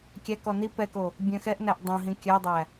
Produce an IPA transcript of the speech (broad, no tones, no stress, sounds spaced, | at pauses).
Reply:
kʲ æ k ɔ n i p ɛ k o | bʲ œ̃ x ɛ ʔ n æ ʔ dˤ õ ɦ ĩ kʲ œ dˤ æ